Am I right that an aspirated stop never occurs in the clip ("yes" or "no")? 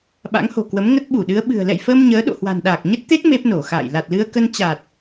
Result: yes